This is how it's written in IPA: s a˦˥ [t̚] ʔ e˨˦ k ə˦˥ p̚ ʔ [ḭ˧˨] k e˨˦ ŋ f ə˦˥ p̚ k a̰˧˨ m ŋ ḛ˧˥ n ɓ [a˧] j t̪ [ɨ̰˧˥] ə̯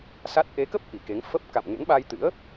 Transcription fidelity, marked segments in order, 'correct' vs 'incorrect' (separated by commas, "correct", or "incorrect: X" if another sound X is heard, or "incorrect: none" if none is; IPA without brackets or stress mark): correct, incorrect: i˨˩, correct, correct